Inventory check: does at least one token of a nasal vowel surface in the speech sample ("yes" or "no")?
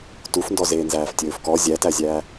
no